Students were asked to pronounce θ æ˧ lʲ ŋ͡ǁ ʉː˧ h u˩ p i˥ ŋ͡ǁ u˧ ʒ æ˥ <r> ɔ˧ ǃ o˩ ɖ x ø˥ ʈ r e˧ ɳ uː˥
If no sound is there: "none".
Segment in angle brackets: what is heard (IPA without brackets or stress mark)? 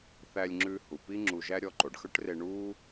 ɾʲ